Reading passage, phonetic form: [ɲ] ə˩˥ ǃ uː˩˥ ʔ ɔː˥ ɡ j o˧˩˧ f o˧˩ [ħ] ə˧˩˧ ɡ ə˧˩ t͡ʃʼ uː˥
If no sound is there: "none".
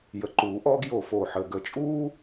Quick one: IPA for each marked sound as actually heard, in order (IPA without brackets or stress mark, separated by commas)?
j, ħ